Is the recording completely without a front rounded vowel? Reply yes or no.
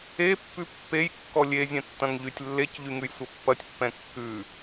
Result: no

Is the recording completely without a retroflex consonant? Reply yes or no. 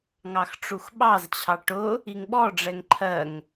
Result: no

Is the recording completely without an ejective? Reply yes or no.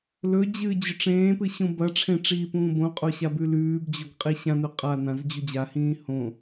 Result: no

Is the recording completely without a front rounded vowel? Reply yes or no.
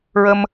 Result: yes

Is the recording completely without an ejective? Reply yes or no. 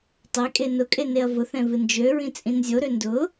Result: no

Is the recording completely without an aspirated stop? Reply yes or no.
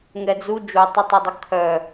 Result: no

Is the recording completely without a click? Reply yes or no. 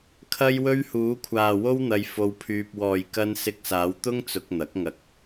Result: yes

